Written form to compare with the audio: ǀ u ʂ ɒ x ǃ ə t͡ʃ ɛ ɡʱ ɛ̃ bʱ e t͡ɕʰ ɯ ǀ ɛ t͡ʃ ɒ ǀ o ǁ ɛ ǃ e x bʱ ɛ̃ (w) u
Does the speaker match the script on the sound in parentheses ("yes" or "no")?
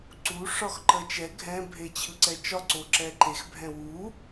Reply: yes